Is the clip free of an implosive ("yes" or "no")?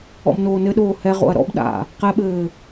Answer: no